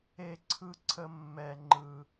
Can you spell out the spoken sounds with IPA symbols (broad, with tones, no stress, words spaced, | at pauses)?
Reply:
e˥ǀʰɯ˥ǀʰə˥ mːɛ˥ ŋ͡ǃɯ˥